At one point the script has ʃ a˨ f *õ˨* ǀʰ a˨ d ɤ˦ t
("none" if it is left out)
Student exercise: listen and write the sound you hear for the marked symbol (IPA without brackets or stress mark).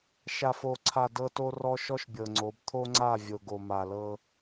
o˨